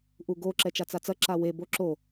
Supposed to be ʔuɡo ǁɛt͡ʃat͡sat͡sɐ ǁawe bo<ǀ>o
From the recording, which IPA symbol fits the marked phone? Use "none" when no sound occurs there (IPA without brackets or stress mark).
ǁ